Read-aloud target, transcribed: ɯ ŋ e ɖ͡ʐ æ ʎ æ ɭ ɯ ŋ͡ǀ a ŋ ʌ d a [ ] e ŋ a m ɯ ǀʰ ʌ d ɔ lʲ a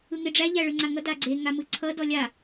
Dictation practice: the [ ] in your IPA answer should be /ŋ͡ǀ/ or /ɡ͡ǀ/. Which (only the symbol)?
ɡ͡ǀ